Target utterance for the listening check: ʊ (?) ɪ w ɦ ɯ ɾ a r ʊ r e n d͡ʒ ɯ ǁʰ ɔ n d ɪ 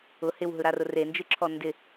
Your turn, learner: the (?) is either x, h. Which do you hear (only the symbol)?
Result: h